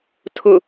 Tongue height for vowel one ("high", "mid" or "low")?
high